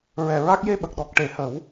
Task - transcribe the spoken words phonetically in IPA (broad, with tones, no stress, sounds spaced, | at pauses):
ɹ ɛ˨˩ ɹ a˦˥ k̚ j e˧ ɓ ə˨˩ k̚ ɗ ɔ˨˩ k̚ ʈ e˨˩˦ h ə˨˩˦ w